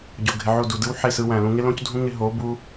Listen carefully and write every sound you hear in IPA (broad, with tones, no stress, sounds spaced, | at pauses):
ɟ o˨ ɡʱ ɪ˨ ʕ o˦˨ d u˨ d ɯ˦ w ħ e˦˨ s ɯ˧ w æ̃˨ l ũ˧ ŋ ɪ˦ l õ˦ c dʱ ũ˦ ŋ ɪ˧ ɦ o˨˦ b u˦